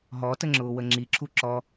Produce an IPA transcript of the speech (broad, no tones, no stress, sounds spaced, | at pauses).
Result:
ɦ ɔ t ə ŋ͡ǁ ʊː w ə ŋ͡ǁ i ǁʰ u ǁ ɔ